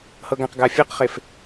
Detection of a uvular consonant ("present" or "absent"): present